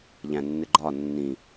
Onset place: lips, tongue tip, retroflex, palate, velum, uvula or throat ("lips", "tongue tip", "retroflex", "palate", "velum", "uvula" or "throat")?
palate